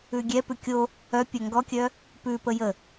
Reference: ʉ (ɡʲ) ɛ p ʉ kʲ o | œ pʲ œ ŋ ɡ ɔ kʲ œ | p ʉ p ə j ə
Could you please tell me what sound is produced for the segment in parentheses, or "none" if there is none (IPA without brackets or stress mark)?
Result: ɡʲ